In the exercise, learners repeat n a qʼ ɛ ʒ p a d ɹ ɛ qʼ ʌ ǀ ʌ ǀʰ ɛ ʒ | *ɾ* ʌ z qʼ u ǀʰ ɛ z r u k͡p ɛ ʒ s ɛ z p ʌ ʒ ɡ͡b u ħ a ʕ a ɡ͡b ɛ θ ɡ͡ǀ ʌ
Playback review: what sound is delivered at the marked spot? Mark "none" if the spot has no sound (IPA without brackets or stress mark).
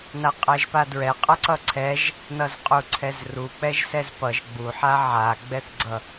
n